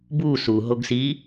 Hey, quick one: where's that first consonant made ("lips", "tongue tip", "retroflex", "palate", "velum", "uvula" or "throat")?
lips